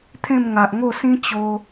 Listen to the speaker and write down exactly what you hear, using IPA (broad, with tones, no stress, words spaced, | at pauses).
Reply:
t̪ʰẽ˥˧m ŋa˨ʔŋo˥˧ sĩ˦ t͡ɕo˧